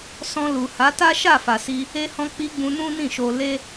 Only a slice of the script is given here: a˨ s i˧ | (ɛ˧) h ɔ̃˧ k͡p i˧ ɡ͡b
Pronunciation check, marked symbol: incorrect: e˧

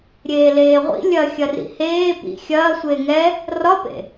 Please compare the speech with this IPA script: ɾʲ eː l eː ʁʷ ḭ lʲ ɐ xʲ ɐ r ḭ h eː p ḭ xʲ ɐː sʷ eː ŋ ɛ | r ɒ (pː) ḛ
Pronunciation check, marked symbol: incorrect: p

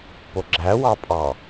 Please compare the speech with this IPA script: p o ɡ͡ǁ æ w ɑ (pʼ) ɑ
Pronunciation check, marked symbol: correct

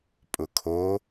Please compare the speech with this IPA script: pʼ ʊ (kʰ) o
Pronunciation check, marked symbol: correct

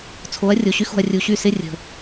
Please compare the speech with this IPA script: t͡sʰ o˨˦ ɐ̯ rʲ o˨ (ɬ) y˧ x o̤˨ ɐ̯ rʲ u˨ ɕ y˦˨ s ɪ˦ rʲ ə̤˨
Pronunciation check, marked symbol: incorrect: ɕ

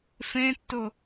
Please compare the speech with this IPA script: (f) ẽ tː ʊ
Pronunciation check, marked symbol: correct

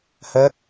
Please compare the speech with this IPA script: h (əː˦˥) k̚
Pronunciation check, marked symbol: correct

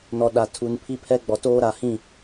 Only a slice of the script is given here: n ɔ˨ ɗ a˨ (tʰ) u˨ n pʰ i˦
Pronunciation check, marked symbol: correct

